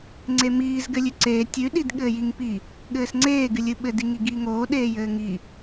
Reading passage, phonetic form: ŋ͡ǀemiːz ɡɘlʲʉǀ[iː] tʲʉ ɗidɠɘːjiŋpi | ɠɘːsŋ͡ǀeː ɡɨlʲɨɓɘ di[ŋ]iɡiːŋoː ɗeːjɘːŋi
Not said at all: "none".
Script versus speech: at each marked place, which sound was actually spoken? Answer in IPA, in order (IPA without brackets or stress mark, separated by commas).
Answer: eː, ŋ